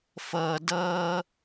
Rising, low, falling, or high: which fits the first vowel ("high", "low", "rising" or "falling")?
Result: low